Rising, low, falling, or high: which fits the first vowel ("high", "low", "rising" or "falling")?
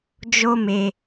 high